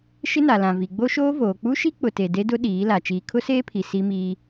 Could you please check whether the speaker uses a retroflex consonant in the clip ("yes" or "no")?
no